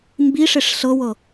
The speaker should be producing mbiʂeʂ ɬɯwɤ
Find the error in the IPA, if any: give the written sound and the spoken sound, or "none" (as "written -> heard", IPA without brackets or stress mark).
ɯ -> ɤ